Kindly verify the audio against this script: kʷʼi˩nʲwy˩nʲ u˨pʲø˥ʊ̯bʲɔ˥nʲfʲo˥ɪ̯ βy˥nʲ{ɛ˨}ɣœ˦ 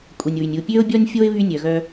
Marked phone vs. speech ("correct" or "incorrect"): incorrect